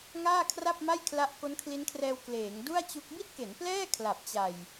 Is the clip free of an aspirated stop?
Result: no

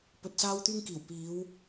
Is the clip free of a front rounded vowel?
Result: no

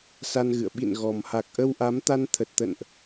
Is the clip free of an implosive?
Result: no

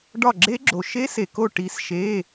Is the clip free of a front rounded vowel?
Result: yes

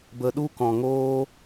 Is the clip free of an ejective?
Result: yes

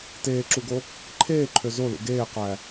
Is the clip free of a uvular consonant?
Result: no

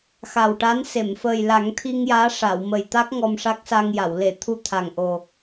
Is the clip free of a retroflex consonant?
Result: no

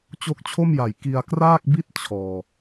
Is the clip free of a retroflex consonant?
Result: yes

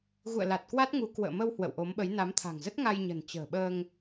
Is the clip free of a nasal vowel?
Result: yes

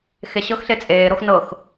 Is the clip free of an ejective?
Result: no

